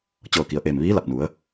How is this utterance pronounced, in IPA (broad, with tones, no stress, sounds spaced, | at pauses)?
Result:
t͡ɕ ɤː˧˩ k i˩ ə̯ ʔ eː˧˩ m ʋ iː˧˥ l a˧˩ p̚ n u˩˧ ə̯